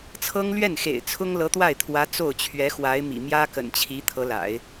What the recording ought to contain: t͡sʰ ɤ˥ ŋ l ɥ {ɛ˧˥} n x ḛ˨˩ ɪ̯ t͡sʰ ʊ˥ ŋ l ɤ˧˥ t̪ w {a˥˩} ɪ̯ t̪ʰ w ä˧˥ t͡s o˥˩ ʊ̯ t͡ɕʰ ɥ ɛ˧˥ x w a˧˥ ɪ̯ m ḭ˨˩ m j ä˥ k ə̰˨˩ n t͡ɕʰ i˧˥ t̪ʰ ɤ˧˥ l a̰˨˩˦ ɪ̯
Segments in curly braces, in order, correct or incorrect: incorrect: ɛ˥˩, correct

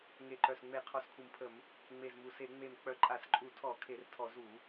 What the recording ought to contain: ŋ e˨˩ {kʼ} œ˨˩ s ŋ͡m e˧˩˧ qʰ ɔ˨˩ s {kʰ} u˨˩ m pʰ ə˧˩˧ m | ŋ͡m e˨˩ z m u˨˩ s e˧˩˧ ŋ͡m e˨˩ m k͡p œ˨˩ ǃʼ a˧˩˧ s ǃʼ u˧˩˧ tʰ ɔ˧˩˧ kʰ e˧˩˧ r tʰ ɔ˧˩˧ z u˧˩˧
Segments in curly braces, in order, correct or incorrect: incorrect: ǃ, correct

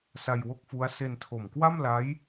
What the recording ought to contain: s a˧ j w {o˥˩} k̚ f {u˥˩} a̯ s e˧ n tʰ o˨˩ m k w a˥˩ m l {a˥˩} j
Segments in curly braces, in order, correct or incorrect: correct, incorrect: u˦˥, incorrect: a˦˥

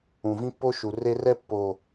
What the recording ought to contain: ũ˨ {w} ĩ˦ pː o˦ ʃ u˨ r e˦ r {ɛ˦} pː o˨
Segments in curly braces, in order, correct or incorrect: incorrect: v, correct

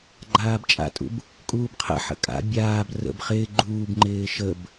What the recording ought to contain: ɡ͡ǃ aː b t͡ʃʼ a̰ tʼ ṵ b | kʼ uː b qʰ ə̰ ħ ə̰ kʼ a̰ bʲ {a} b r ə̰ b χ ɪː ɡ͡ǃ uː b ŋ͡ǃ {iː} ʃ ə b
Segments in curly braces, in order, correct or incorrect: incorrect: aː, incorrect: ɪː

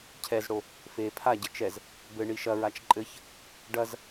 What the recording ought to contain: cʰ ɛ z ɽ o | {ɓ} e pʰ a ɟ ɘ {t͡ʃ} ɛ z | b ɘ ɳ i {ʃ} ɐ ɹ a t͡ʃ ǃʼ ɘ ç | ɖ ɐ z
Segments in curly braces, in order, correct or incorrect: incorrect: f, correct, correct

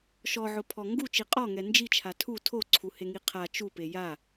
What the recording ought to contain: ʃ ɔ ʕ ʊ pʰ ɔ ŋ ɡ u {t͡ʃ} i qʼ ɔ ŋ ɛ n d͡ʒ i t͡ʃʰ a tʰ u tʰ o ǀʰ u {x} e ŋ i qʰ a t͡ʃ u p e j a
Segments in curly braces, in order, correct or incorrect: correct, incorrect: h

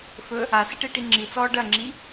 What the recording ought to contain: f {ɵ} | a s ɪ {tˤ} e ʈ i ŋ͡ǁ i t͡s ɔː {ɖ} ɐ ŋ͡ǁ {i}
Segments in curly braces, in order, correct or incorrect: correct, incorrect: ʈ, correct, correct

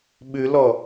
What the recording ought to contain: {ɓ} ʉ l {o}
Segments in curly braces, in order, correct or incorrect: correct, incorrect: ɔ

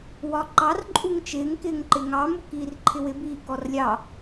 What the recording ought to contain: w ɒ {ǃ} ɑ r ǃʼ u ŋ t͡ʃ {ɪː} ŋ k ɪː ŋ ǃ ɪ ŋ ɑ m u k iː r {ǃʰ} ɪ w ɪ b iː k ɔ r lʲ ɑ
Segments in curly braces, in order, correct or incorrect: correct, correct, correct

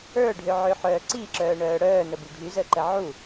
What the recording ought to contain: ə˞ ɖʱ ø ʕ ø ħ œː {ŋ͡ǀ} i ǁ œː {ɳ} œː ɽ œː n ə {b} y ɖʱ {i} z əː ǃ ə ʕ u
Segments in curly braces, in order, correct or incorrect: incorrect: ǀ, correct, correct, incorrect: y

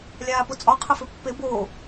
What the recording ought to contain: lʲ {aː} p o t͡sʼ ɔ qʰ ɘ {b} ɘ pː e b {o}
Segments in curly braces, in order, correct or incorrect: correct, incorrect: f, correct

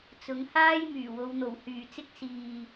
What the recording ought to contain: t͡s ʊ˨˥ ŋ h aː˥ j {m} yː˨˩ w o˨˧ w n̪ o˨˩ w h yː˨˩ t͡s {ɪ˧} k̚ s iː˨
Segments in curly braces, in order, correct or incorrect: correct, incorrect: ɪ˥

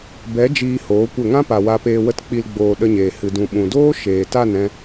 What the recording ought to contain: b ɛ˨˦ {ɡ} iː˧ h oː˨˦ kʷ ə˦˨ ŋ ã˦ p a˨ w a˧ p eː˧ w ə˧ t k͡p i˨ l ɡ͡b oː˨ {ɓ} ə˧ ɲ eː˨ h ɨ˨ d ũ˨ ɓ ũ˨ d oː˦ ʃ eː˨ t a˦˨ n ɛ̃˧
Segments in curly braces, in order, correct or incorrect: incorrect: d͡ʒ, incorrect: ɗ

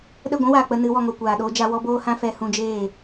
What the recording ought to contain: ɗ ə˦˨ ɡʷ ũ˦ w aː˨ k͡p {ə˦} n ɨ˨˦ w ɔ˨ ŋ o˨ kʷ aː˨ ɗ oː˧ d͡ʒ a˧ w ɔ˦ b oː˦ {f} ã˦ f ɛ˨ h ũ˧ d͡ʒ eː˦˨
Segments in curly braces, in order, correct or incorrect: incorrect: ə˧, incorrect: h

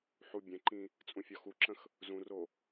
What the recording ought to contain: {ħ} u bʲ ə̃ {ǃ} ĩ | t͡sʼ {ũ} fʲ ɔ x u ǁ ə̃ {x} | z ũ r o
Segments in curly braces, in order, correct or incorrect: correct, correct, correct, correct

